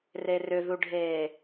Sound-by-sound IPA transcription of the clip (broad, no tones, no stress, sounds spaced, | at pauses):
r e r ʏ ð u ɖʱ eː